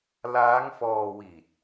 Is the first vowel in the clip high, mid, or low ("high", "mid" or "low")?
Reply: low